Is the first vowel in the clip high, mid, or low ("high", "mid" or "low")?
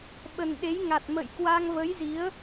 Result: mid